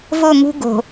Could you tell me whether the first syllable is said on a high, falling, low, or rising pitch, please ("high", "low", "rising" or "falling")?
falling